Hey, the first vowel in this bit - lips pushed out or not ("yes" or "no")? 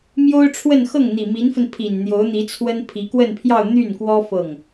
yes